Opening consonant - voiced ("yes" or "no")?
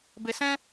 yes